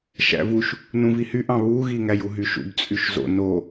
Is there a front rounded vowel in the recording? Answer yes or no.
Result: yes